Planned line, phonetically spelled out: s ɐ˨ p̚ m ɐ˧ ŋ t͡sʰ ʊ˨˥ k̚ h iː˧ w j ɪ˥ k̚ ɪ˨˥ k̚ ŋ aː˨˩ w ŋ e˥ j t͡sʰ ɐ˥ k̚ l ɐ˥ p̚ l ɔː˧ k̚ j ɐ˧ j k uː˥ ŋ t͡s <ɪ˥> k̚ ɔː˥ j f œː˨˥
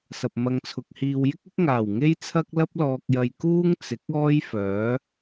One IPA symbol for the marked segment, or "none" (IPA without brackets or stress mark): ɪ˨˥